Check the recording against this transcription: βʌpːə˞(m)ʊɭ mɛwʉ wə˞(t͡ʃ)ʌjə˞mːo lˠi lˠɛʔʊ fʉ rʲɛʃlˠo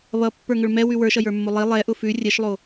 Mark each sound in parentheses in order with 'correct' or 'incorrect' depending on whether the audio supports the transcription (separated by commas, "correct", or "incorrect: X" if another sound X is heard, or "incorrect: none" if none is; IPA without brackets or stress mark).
incorrect: ŋ, incorrect: ʃ